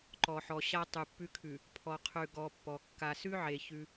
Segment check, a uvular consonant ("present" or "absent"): present